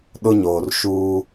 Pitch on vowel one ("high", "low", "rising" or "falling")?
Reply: high